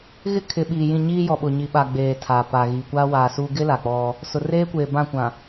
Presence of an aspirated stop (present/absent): present